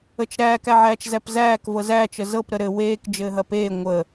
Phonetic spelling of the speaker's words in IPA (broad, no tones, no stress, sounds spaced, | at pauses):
ə t͡ʃ ɾ æː k æ ʕ æː t͡ʃ z æ p z æː k v ɤ z æː t͡ʃ ə z ɤ p ɾ ə ɾ ɘ w eː k d͡ʒ ɘː ɦ ɐ p eː ŋʷ ə